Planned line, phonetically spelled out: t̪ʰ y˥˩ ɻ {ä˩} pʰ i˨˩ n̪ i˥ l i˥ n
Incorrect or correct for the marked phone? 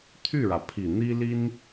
correct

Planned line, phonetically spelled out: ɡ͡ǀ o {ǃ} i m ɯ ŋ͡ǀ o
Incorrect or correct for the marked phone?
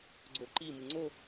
correct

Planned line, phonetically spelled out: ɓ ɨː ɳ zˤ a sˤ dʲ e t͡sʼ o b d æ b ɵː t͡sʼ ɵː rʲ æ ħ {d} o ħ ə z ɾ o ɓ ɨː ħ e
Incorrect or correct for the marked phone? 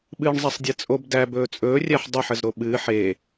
incorrect: dˤ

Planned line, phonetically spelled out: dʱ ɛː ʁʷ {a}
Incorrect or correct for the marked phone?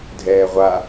correct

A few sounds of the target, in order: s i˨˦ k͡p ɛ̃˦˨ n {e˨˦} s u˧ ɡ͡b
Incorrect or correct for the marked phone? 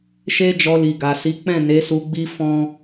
correct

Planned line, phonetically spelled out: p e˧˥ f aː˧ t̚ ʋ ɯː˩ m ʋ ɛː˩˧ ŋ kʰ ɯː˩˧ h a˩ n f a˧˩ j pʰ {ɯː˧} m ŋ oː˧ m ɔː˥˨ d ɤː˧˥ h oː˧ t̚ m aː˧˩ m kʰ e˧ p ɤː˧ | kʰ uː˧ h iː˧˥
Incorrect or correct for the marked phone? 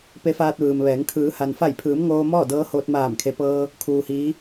incorrect: ɯː˩˧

